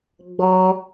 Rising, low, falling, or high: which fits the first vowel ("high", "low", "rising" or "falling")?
high